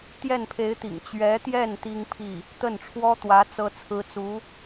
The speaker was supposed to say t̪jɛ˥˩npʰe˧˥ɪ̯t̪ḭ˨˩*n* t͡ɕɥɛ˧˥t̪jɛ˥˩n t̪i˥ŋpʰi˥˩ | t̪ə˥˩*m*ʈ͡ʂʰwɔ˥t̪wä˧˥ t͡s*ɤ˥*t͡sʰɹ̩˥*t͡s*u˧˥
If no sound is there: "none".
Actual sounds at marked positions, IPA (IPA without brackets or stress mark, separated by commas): ŋ, n, ɤ˥, t͡s